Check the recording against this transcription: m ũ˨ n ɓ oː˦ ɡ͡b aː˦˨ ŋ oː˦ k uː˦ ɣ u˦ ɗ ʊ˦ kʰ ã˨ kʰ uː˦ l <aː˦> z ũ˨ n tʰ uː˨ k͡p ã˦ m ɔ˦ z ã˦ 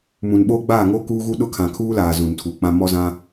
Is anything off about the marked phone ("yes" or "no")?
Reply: yes